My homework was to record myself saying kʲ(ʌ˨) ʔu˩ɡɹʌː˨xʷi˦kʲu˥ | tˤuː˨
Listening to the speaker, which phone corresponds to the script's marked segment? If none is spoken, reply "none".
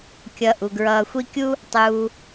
ʌ˨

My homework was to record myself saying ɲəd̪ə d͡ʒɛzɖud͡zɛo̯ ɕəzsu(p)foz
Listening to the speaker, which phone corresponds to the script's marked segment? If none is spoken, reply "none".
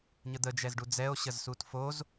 t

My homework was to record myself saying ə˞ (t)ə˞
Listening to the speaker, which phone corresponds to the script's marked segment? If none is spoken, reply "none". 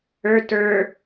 t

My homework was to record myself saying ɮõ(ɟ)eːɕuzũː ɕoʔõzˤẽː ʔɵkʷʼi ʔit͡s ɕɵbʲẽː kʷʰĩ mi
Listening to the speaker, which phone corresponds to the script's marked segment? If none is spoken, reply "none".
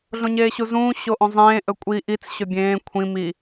ɲ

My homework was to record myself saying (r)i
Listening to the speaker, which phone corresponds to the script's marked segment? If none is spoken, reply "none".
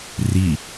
r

